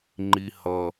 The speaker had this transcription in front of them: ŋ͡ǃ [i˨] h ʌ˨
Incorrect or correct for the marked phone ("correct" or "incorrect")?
correct